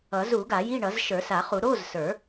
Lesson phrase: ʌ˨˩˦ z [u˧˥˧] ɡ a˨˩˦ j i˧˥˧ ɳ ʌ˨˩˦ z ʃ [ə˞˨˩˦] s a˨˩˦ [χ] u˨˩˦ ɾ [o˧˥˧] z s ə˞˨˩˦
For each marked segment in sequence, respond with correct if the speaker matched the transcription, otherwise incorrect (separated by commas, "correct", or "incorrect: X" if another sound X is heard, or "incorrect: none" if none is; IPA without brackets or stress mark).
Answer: incorrect: u˨˩˦, correct, correct, correct